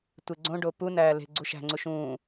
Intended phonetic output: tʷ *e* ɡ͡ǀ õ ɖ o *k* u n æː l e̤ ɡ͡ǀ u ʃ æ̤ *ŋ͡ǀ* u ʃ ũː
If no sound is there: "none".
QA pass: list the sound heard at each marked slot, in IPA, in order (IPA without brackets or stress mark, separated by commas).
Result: e, p, ŋ͡ǀ